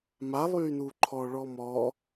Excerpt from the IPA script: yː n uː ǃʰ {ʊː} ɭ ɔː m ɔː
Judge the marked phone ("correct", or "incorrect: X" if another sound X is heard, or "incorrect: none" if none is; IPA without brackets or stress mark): incorrect: ɔː